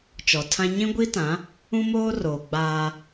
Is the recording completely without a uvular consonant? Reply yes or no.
yes